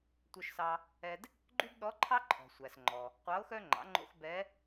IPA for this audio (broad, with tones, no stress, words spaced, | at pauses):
tʷœ˧ʃsɑ˧ | ɛ˧d | ɡ͡ǃy˥bɗɔ˧˥ǃʰɑ˥ ǃʰɔ̤˩sʷæ˩s ŋ͡ǃɔ˩ | qʷɑ˧˥o̯xœ˥ ŋ͡ǃɑ̰˩˧ŋ͡ǃo̰˧x bɛ˧˥